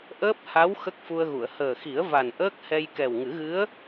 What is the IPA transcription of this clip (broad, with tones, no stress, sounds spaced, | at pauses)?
ʔ əː˦˥ p̚ h a˧˥ w x ə˦˥ k̚ f u˧ ə̯ ɣ u˨˩˨ ə̯ h əː˨˩ x i˨˩˦ ə̯ v a˨˩ n ʔ əː˦˥ k̚ h ɛ˧ j k ɛ˨˩ w ŋ ɨ˨˩˦ ɣ ɨ˧˥ ə̯